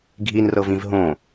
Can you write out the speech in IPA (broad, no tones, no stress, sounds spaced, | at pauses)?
ɡʱ i n r ɤ v ĩ v ɦ õ